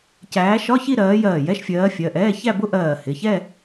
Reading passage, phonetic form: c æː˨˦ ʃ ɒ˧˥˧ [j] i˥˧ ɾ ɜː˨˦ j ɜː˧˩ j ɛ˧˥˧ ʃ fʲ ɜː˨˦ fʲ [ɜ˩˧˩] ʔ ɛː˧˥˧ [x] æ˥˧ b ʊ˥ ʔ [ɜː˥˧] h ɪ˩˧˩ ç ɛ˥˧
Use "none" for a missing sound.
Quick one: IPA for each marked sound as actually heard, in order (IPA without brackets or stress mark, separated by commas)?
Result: ç, ɜ˩˧˩, ç, ɜː˧˩